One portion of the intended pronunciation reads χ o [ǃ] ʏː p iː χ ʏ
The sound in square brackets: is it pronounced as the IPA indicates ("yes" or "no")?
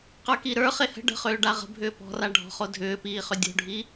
no